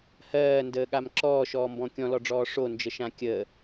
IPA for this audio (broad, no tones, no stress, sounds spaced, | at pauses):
h ɜː n d əː ɠ a m ǁ ɔː ʃ ɔː m b ɔ̃ kʲ ɔ̃ l ɔ ɖ͡ʐ ɔː ʂ o n d͡ʒ ə ʃ ã kʲ əː